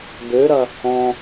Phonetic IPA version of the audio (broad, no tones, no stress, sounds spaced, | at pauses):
b ø ɾ ɐ | ɔ̃